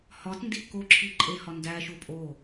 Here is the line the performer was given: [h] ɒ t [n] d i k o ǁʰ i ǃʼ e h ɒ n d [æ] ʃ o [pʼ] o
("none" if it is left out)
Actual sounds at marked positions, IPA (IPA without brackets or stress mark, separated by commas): h, n, æ, pʼ